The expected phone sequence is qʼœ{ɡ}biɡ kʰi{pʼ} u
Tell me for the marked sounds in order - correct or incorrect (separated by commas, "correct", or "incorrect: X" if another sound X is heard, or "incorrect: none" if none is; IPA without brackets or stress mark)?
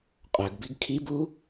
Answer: correct, incorrect: b